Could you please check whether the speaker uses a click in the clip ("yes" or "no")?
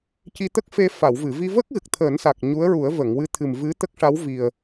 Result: no